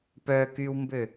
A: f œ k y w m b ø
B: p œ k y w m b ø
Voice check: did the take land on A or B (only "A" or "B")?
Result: B